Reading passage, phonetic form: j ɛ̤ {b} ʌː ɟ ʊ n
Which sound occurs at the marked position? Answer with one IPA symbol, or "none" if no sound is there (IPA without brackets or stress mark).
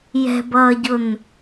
b